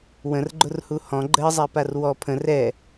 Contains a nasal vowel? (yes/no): yes